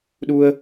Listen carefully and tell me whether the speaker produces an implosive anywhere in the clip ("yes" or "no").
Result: yes